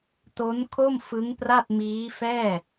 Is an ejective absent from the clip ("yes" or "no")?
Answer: yes